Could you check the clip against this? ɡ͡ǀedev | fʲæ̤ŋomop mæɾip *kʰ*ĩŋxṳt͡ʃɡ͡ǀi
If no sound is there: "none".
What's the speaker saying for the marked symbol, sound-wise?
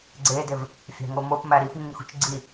ŋ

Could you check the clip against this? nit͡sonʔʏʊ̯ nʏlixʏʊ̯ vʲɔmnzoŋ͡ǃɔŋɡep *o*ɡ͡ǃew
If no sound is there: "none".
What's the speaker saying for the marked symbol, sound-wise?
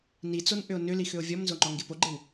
o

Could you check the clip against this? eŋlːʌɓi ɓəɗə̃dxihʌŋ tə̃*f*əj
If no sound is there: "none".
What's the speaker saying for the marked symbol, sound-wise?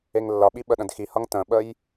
ɓ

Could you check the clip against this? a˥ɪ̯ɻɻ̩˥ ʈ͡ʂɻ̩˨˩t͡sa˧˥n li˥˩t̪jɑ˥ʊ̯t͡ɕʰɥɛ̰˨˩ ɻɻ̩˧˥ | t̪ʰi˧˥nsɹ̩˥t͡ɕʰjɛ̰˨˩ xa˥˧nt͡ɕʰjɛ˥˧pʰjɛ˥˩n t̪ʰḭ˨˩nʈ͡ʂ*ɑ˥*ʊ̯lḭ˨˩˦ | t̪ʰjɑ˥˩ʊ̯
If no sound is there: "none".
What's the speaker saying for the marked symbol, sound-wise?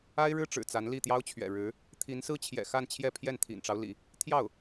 ɑ˦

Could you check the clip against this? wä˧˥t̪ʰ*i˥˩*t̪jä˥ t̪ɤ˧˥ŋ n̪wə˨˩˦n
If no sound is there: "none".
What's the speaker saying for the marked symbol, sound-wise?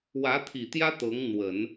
i˨˩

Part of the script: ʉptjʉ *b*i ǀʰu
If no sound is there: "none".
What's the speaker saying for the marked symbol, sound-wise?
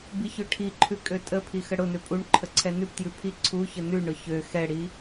pʰ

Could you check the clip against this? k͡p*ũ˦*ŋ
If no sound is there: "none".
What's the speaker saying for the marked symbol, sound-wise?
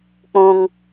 ũ˦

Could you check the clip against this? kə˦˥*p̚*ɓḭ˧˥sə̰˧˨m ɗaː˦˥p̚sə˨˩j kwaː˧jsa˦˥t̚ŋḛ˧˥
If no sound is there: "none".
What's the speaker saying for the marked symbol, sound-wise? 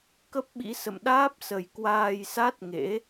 p̚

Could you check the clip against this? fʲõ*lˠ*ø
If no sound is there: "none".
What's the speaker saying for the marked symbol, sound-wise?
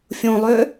lˠ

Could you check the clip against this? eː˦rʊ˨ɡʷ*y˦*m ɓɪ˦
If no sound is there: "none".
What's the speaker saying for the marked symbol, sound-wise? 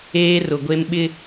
e˦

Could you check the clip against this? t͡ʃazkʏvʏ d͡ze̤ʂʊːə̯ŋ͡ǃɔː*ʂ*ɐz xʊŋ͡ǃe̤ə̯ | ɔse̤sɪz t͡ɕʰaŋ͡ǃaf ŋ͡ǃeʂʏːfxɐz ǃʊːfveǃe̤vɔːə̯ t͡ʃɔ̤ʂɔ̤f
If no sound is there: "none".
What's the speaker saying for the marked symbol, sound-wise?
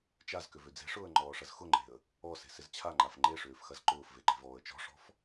ʂ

